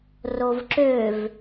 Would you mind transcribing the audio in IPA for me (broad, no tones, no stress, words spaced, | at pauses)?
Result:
rovǁøv